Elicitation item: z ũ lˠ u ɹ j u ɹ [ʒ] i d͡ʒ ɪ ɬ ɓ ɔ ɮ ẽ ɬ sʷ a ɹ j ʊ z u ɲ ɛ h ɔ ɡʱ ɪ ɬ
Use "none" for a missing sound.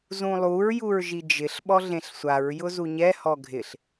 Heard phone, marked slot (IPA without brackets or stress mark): ʒ